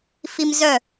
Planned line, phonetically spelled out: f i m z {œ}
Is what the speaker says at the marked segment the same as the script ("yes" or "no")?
yes